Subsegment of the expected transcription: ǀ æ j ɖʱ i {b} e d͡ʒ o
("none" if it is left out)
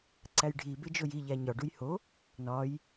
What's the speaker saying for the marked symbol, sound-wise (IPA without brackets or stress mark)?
b